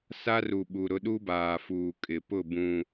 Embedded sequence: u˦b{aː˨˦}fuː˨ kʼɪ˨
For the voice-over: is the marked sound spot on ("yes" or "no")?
no